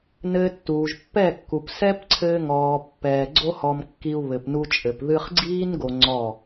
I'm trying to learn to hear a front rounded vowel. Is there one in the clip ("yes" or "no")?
no